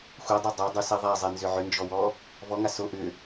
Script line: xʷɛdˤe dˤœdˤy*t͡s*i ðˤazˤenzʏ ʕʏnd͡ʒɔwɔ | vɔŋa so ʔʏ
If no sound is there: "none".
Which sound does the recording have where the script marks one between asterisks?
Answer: s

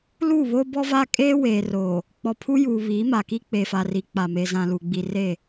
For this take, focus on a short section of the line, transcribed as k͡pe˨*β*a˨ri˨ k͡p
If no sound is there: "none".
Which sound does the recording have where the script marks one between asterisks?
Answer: f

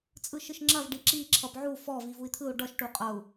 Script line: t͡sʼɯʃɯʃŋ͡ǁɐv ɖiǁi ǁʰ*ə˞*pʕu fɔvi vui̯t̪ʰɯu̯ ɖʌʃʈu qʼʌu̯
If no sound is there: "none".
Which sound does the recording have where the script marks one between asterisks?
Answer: ʌ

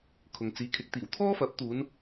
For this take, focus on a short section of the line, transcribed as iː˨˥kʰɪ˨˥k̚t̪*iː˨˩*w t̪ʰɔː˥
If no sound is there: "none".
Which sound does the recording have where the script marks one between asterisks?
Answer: iː˨˩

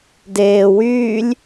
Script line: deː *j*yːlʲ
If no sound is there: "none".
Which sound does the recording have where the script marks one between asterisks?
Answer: w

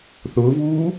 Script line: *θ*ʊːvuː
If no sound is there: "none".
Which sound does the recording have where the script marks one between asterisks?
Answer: θ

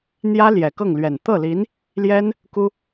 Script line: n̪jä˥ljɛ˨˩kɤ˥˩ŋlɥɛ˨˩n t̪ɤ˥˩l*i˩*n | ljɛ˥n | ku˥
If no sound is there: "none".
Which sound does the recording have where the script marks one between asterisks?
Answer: i˧˥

